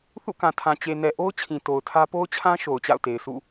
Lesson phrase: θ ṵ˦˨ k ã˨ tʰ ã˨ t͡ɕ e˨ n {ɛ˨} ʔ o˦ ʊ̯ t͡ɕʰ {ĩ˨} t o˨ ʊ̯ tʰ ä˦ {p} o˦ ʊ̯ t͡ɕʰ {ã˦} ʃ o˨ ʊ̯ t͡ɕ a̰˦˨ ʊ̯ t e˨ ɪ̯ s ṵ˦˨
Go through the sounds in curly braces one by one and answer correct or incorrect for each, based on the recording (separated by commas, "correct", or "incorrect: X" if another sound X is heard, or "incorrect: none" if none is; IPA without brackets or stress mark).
correct, correct, correct, correct